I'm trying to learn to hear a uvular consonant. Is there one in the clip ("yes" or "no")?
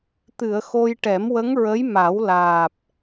no